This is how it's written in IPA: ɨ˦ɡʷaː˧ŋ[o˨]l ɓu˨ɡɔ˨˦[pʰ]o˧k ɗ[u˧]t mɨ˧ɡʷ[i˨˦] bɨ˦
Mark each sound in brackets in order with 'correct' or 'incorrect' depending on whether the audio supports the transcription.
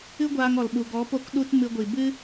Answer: incorrect: ɔ˨, incorrect: p, incorrect: u˦, incorrect: i˨

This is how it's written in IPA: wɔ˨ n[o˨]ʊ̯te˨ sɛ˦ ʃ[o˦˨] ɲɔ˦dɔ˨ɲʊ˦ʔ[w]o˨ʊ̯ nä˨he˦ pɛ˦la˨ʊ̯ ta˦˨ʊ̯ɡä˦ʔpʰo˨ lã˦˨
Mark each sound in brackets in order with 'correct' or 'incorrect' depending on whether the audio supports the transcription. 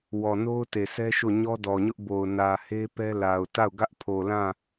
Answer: incorrect: o˦, correct, incorrect: b

